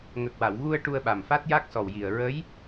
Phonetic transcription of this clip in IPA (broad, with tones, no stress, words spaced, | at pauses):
ŋə˨˩k̚wa˨˩˨w ɣu˧ə̯ ʈu˧ə̯ɓa˨˩mfa˦˥t̚ ja˦˥k̚sɔ˨˩wji˨˩ə̯ ɹə˧˥j